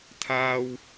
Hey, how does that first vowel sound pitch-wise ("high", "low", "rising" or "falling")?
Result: high